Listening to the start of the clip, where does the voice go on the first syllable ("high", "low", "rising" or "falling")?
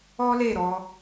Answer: high